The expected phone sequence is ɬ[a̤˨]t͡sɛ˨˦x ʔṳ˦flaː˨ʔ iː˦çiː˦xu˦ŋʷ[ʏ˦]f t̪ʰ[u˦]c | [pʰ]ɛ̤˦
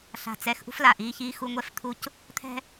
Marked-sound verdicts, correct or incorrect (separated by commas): correct, incorrect, correct, incorrect